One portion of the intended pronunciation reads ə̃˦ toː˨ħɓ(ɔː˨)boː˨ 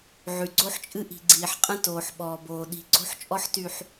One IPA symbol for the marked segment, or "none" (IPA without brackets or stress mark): ɔː˨